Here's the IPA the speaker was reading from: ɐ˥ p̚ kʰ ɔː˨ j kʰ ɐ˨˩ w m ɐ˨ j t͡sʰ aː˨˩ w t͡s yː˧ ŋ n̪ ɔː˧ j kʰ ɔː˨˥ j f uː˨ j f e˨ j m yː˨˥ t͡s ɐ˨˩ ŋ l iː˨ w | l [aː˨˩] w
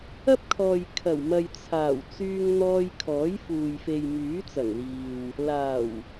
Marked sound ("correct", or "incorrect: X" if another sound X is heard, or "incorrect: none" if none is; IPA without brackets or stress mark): correct